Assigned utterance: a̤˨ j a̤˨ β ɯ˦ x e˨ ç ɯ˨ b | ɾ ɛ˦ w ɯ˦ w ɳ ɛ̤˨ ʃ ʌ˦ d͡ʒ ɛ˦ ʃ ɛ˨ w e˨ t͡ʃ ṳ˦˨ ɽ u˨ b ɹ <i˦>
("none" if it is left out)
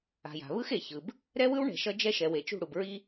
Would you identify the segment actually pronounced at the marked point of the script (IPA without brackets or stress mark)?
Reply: i˦